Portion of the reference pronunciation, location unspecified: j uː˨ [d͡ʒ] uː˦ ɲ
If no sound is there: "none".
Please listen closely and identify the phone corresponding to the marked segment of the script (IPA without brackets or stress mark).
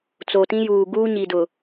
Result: ɡ